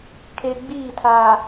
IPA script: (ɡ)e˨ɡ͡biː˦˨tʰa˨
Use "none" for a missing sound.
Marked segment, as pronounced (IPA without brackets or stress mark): kʰ